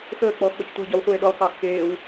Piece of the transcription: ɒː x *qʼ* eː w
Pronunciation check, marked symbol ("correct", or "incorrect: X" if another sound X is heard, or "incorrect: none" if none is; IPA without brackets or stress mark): incorrect: k